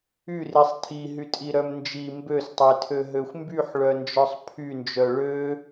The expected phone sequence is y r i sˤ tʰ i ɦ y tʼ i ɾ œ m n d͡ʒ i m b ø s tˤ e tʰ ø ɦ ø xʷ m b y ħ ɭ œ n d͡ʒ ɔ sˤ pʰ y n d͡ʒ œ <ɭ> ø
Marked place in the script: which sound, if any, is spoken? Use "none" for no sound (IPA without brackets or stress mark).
ɭ